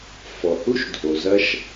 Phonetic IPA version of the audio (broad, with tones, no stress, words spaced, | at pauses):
fɔ˨hu˦ʃdʱo˨zɐ˦ʃ